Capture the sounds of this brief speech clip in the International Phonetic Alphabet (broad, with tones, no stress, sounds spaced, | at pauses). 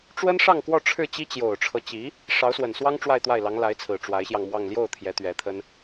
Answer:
ʈ͡ʂ w ə˥ n ʂ ɑ˥˧ ŋ k w ɔ˥˧ ʈ͡ʂʰ ɻ̩˥˩ t͡ɕ i˥ t͡ɕ j o˨˩ ʊ̯ ʈ͡ʂʰ ɤ˦ t͡ɕ i˧˥ | ʂ ɑ˧˥ ʊ̯ s w ə˨˩ n s w ɑ˥ ŋ ʈ͡ʂ w a˥˧ ɪ̯ t̪ w a˥˩ ɪ̯ l ɑ˧˥ ŋ l a˧˥ ɪ̯ t͡sʰ ɹ̩˨˩ ʈ͡ʂ w a˧˥ ɪ̯ ɕ j ɑ˧ ŋ m w ɑ˥˧ ŋ l j o˥˩ ʊ̯ t̪ʰ j ɛ˧˥ t̪ ɥ ɛ˧˥ t̪ʰ ə˥ n